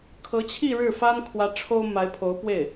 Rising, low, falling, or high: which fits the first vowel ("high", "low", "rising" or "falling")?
rising